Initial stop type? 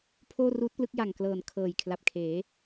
aspirated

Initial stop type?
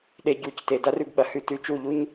implosive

